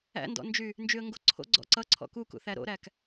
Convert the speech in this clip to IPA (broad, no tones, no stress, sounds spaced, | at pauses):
æ̰ n d ɔ̰ n d͡ʒ y | n d͡ʒ y ə̯ ŋ ɡ o ǀʰ o̰ ɡ͡ǀ ɔ̰ ǀ ʌ ǀʰ ɔ̰ k u k ṵ θ æ ɾ o̰ ɾ æ k